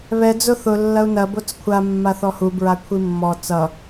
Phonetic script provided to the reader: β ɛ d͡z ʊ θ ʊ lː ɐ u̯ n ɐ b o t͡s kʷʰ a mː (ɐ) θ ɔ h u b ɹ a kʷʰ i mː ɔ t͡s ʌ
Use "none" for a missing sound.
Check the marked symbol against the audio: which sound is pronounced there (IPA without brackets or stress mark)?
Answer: a